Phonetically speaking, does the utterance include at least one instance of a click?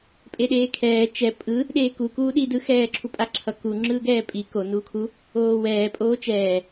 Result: yes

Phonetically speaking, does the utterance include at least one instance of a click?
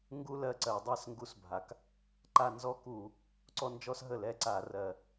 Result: yes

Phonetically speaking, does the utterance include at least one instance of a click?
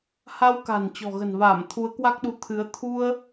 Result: no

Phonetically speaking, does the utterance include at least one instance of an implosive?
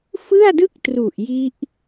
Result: no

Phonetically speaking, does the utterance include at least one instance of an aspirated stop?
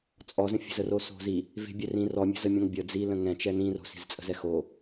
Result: no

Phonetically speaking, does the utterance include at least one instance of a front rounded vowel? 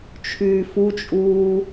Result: yes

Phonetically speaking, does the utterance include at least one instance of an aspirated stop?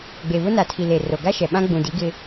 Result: yes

